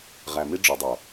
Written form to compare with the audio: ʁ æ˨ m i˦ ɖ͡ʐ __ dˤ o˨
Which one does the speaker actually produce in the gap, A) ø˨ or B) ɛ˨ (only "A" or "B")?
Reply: A